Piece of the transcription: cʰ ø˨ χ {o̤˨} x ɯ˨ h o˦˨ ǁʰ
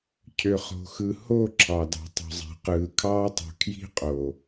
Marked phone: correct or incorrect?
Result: correct